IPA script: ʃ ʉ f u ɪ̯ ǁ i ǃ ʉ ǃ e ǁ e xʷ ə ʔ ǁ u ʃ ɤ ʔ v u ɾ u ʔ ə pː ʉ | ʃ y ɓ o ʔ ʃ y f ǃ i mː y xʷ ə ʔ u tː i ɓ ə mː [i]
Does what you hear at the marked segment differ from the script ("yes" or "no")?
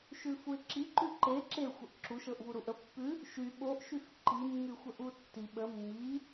no